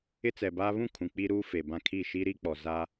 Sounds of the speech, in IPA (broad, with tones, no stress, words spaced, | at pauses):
ɪ˦t͡sɛ˨baː˦ βũ˦˨ kʰũ˨k͡pi˦ ɾuː˦fe˨bã˦ kʰi˦˨ ʃi˦ɾi˦k͡pɔ˨ za˦